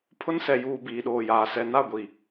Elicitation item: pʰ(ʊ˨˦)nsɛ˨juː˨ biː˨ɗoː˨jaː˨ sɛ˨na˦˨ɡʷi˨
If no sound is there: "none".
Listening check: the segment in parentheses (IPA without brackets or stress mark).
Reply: ʊ˦